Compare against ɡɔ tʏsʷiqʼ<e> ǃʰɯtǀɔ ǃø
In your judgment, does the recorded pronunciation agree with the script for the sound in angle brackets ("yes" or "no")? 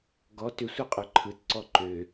no